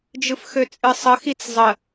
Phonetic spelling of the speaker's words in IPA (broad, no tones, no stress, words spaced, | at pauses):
d͡ʒɯfxøt͡sʼɨsˤə xit͡szˤə